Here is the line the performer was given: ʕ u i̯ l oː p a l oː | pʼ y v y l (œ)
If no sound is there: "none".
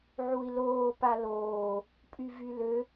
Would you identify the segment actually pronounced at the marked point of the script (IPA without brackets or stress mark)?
ø